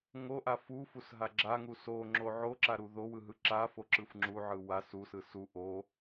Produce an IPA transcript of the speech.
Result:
ŋ o ʔ a f u f u s ɦ a ɡ͡ǁ a ŋ u s o ŋ͡ǁ o ʕ o ǁ a ɾ u ð o w ɯ ɦ ɯ ǁ a f o ǁ ɯ f ŋ͡ǁ u ʕ ɯ w a s u s ɯ s u ʔ o

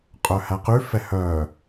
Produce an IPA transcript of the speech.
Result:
qʼ œ h æ q ʉ f ɛ h œː

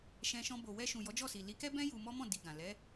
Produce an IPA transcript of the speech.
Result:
ʃ ɛ̃˧ ʃ ɔ̃˧ b o˨ w ɛ˧ ʃ ũ˨ j ɔ˨˦ d͡ʒ ɔ˦˨ s i˨ l i˨˦ k ɛ˦ b ɛ̃˦ j u˧ m ɔ˦ m ɔ̃˦˨ d i˨ ɡ ã˨ l ɛ˨˦

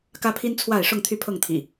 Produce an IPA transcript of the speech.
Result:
k ä˦ pʰ i˦ n t͡sʰ w a˥˨ ɪ̯ ʂ ʊ˥˨ ŋ t̪ʰ y˥˨ pʰ ɤ˥˨ ŋ t̪ʰ ḭ˨˩

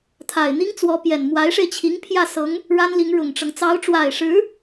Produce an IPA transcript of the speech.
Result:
t̪ʰ a˨˩ ɪ̯ n̪ i˥ ŋ t͡s w ɔ˧˥ p j ɛ˨˩ n m w a˧˥ ɪ̯ ʂ e˧ ɪ̯ t͡ɕʰ i˧˥ ŋ pʰ j ä˥˩ s ɤ˧˥ ŋ | ɻ a˥ n l i˧˥ ŋ ɻ ʊ˨˩ ŋ ʈ͡ʂ ɤ˦ ŋ t͡s ɑ˧˥ ʊ̯ ʈ͡ʂ w a˨˩ ɪ̯ ʂ ɻ̩˧˥

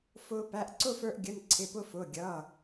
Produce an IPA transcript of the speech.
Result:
f ʊː˧ p æ˩˧˩ ʔ ǀ ʊ˥˧ f ə˞˧ ʔ ɡʲ ə˩˧˩ n ǀʰ ɪ˩˧˩ p ʊ˧ f ʊː˩˧˩ ɡʲ ʌː˩˧˩

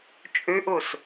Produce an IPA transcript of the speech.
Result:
t͡ʃʼ ʉ ʔ u s

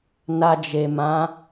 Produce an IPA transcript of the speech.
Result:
n a˧ d͡ʒ e˨ m ã˨˦

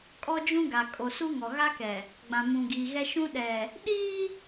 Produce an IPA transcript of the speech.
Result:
kʼ ɔ˦ d͡ʒ ũ˦ ɡ a˨ kʼ o˨ s u˦ ŋ ɔ˨ ɣ a˦ k ɛ˨ | ɡ͡b ã˨ m ũ˨ ɡ iː˨ ɣ ɛ˦ ʃ ũ˦ ɗ ɛ˨ | ɗ iː˦

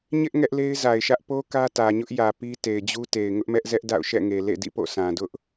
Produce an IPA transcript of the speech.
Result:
ɲ ɪ˦ ʔ ŋ ɛ˦ ʔ l e˦ ɪ̯ z a˨ ɪ̯ ʃ ä˦ ʔ p o˦ k ä˦ t ä˨ ɲ ʊ˦ ʔ j ä˨ p i˦ t e˨ ɪ̯ d͡ʑ u˦ t e˨ ɪ̯ ŋ ʊ˦ ʔ m ɛ˦ ʔ z ɛ˦ ʔ d a̰˦˨ ʊ̯ ʃ ɛ̰˦˨ ŋ e˨ l ḛ˦˨ d ḭ˦˨ p o̰˦˨ sʰ ã˨ d ʊ˦ ʔ

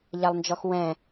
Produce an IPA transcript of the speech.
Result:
ʎ a lˠ n d͡ʒ ɔ x w ɛ̃

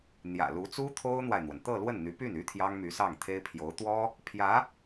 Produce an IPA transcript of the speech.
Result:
n̪ j ä̰˨˩ l u˧˥ t͡s u˥ t̪ʰ o˥ ʊ̯ n̪ w a˨ ɪ̯ n̪ w ə˩ n t̪ ɤ˥˧ l w ə˥˩ n n̪ y˧˥ p y˥˩ n y˥ t̪ʰ j ɑ˥ ŋ m y˧˥ s ɑ˥˩ ŋ t̪ʰ e˥ ɪ̯ pʰ j o˧˥ ʊ̯ t̪ w ɔ˥ | pʰ j ä˧˥

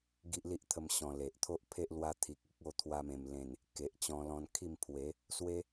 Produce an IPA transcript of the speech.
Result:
ɡ i˦ ʔ l i˦ ʔ t̪ʰ ə˧ m ɕ ɔ̃˧ l e˨ ʔ t̪ʰ o˦ ʔ pʰ e˦ ʔ l w a˧ t̪ʰ i˨ k̚ i˦ k̚ o˥˧ t̪ʰ w a˧ m ẽ˨˩ m l ẽ˨˩ n | k e˨ ʔ t͡ɕ ɔ̃˧ l ɔ̃˧ n kʰ i˥˧ m pʰ w e˨˦ | s w e˦

